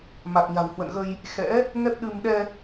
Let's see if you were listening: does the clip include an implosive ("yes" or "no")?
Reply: yes